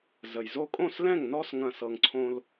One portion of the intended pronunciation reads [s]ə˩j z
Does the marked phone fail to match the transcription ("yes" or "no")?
yes